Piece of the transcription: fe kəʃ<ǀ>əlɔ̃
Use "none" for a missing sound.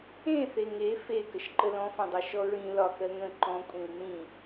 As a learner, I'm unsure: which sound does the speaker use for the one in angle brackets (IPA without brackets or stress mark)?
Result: ǃ